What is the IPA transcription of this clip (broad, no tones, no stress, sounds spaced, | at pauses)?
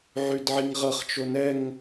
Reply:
ʕ y d ʕ i ŋ ʁ ɤ χ t͡ʃ o n ɛ ŋ